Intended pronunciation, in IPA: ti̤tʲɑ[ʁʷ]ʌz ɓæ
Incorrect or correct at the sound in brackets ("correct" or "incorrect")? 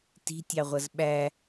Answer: correct